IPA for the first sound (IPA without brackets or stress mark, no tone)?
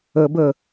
ə